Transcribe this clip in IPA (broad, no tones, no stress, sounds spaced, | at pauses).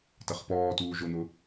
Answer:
t ɐ χ p ɔː t uː ʒ ʊ n̪ ʊ